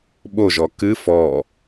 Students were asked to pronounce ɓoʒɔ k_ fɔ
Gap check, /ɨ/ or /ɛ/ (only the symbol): ɨ